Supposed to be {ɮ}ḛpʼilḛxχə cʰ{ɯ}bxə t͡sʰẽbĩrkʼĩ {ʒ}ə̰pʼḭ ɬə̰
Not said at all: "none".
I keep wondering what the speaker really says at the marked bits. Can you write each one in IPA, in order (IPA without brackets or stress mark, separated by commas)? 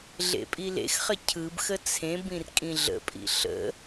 ɮ, ɯ, ɮ